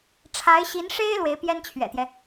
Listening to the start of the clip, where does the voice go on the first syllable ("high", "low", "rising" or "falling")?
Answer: rising